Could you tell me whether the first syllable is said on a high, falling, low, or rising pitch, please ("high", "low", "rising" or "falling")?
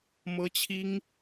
high